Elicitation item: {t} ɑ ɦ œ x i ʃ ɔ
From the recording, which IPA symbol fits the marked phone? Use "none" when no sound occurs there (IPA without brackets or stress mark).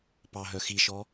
p